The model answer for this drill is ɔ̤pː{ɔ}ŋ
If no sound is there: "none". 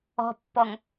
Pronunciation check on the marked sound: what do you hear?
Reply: ɔ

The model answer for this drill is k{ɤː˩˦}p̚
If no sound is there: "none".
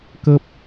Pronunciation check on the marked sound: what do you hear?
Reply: ɤː˥˩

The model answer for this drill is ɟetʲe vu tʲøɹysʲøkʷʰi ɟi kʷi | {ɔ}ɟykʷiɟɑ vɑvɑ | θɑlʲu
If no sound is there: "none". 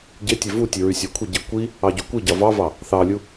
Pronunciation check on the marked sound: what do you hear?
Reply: ɑ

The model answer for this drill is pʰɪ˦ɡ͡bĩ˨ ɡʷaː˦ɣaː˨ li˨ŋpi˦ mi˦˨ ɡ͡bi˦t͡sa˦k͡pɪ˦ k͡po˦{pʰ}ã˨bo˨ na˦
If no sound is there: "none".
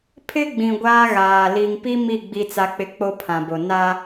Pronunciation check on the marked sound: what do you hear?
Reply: pʰ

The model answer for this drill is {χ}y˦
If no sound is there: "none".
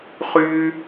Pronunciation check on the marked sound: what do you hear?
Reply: χ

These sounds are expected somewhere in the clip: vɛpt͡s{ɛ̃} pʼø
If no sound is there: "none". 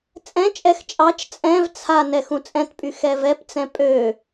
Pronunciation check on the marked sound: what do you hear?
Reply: ɛ̃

